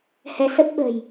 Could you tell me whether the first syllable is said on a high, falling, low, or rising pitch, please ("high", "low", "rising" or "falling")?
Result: rising